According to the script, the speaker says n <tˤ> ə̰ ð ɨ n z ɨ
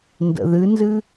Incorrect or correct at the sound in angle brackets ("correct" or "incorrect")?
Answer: incorrect